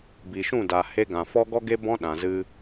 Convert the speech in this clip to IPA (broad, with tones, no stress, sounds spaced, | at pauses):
b i˨ ʃ ũ˦˨ d a˨ h e˧ ɡ ã˨ f ɔ˦ ɡ ɔ˦ ɡ e˦ b ɔ̃˦ ɗ ã˨ z ɨ˧